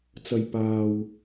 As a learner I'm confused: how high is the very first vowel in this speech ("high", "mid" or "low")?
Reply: low